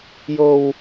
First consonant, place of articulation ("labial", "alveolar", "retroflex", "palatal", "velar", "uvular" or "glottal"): palatal